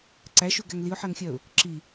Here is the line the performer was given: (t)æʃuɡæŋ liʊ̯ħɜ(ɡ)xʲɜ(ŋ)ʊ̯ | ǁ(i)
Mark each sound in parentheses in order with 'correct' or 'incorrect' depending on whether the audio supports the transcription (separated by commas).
incorrect, incorrect, incorrect, correct